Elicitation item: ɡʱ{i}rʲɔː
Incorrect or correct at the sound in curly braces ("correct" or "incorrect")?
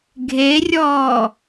incorrect